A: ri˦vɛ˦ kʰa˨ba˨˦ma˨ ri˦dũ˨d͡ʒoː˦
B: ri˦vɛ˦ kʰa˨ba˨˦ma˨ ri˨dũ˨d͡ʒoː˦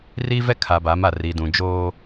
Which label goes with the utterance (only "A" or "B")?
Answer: B